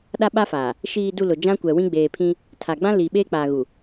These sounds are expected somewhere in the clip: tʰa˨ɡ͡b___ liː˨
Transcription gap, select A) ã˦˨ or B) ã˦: B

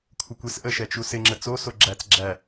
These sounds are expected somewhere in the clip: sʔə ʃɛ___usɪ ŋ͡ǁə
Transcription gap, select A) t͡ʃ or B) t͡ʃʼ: A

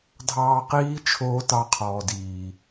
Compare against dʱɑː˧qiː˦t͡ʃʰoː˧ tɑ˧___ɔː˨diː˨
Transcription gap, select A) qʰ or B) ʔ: A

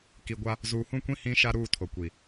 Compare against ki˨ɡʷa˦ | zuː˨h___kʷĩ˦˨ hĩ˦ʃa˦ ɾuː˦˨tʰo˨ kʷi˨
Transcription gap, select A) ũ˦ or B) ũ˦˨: B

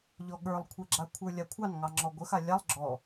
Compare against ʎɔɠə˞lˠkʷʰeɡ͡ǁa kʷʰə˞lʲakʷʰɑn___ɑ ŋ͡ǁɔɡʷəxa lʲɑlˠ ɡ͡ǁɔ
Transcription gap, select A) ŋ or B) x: A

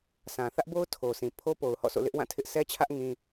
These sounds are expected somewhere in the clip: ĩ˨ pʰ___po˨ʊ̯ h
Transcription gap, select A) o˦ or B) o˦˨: A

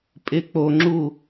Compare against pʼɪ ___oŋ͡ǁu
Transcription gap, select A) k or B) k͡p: B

